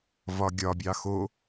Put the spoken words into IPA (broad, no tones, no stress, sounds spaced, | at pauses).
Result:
v ɒ ɡʲ ɒ bʲ ɑ x o